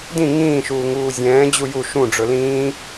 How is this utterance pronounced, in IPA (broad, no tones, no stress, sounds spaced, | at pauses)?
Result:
d ĩ ŋ ĩː ʃ uː ŋ uː zʲ ɛ̃ː d͡ʑ u j u ʃ ũ ɖ͡ʐ ɵ l ĩː